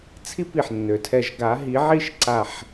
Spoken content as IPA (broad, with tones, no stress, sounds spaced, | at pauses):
t͡sʰ i˥˧ p i˩ ħ nː ø˩ tʰ ɛ˧˩ ʒ ɡ a˨˩˦ ɦ i˨˩˦ ʕ i˥˧ ʃ ǀ a˧˩ ħ